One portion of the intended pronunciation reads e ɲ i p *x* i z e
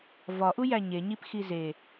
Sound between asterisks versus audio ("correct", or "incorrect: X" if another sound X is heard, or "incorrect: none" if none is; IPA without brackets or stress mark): correct